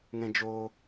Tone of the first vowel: low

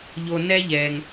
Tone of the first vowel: low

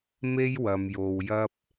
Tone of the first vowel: high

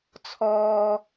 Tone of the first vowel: low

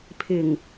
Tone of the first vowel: low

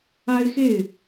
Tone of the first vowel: high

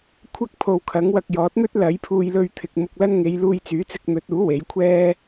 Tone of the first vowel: high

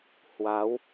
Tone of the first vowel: rising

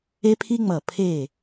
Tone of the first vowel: high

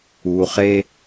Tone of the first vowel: low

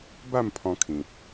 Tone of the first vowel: falling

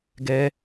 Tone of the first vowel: high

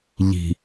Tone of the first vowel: low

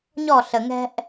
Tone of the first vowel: falling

